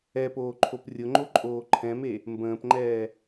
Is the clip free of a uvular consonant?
yes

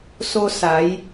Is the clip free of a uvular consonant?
yes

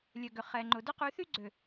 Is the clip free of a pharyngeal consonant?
yes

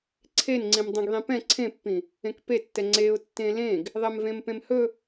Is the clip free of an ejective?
yes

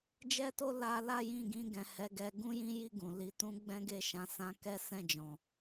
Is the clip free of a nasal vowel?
no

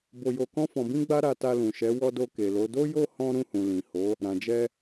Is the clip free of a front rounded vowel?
yes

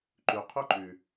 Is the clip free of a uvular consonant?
no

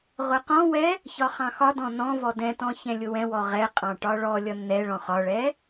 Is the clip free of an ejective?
no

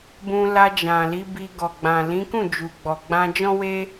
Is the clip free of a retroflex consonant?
yes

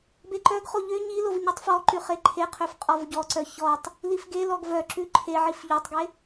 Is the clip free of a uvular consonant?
no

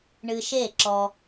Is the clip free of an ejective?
yes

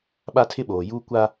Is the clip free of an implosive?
no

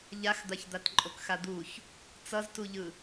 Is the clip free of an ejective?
no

